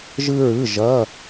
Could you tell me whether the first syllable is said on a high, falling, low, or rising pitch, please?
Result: high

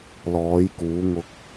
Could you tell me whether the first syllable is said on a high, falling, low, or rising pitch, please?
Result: rising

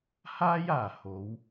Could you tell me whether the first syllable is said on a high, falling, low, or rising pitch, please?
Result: high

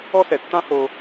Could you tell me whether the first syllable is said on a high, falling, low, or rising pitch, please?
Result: high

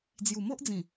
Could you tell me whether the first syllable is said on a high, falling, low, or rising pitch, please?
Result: low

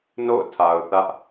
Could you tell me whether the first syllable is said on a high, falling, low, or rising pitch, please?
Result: falling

